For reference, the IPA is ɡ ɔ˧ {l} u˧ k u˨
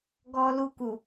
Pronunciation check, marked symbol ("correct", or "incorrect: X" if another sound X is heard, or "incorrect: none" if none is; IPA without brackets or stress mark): correct